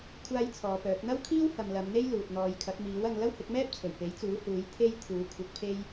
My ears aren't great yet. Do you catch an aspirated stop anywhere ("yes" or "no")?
yes